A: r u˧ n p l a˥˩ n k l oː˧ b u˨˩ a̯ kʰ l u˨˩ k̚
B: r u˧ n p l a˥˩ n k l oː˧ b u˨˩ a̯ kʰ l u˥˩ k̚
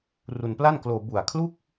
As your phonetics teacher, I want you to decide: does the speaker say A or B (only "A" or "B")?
B